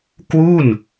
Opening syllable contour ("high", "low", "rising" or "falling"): falling